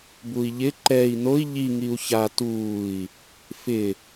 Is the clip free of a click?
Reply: no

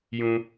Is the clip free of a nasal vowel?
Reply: no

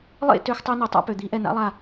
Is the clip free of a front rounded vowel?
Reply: no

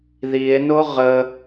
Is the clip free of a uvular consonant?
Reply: no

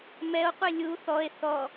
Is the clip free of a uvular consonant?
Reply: no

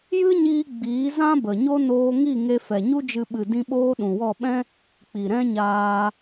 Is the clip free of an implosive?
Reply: no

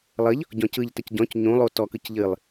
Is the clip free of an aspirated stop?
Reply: yes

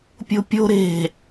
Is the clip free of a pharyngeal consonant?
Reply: yes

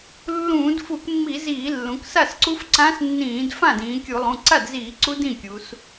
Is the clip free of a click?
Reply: no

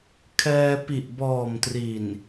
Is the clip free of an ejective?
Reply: yes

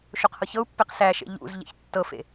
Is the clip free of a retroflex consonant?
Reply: yes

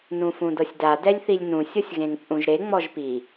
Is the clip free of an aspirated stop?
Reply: yes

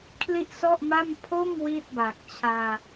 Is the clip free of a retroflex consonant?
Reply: yes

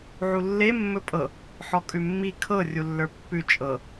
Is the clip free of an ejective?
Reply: no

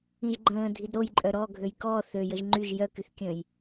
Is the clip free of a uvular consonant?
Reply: yes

